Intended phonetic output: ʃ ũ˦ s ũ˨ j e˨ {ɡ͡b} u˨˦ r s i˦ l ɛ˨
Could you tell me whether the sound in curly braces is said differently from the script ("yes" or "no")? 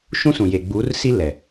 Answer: no